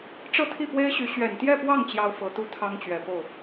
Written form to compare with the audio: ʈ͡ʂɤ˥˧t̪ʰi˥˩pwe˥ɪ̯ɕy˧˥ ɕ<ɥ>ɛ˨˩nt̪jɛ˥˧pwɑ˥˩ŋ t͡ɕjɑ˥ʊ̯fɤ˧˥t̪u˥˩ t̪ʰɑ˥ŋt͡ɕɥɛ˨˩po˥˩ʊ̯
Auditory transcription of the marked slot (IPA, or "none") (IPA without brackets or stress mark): ɥ